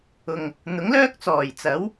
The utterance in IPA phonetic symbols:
ʊ˨ŋ | n̪ʊ˨˥ŋlœː˥k̚t͡sɔː˨˩jt͡sɐ˨˥w

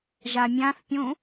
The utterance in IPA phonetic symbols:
ʒamʲãθpʲũ

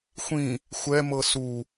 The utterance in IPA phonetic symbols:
xʷĩ | xʷɛ mɤsu

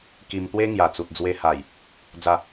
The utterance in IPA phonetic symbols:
ki˧mt̪we˦ ŋja˨˩t͡su˨t̚d͡zwe˧ha˨˩j | d͡za˥˧

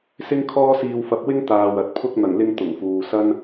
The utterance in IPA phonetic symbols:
sɪ˥ŋkʰɔː˥siː˧wfɐ˧p̚ wɪ˥ŋ t̪aː˨wɐ˨t̚pʰʊ˥k̚ n̪ɐ˨˩ŋlɪ˧ŋ t̪ʊ˨˩ŋfuː˨ sɐ˥n

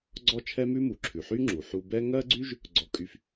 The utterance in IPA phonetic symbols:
ɡ͡ǀɔ˥t͡ʃʰɛ˥mʉ˥ mu˩ǁʰʉ˩ ħy˥ ŋ͡ǁu˩ħu˧bɛ˥ ŋɜ˥ɡ͡ǀy˥ʒ | ɡ͡ǀɔ˧kʼy˧f

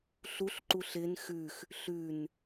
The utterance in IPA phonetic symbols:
ɬuɬǃuɬ ɪn xʉx | ɬʉn

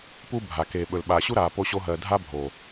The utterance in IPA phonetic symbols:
pu˧ bʱa˨ keː˨ɓɵ˨l ɓaː˨ɕu˦ɾaː˨ po˦ɕo˦ɦɜː˧ dʱa˦bʱoː˨

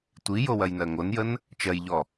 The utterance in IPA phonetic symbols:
tʷijo wɐjnɜŋonjən | t͡ʃɜjʎɔ

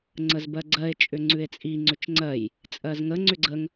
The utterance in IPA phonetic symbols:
ŋ͡ǀəzbɜɡ͡ǀɜe̯ t͡ʃʼʏŋ͡ǀʉe̯t͡sʼi ŋ͡ǀʏt͡ʃŋ͡ǀɜj | t͡sʼɜzŋə ŋ͡ǀʏɡ͡ǀəŋ

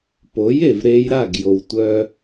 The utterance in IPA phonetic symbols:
po˩˥je˩vɾe˧jɾa˥˩ɡ jo˧wtʷœ˥

